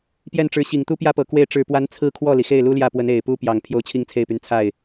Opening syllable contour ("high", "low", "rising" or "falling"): falling